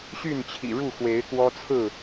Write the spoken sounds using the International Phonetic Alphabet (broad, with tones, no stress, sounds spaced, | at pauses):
ɕ y˥˨ n t͡ɕʰ ḭ˨˩ ɻ u˥˨ x w e˨˦ ɪ̯ k w ɔ˦ t͡sʰ ɹ̩˥˨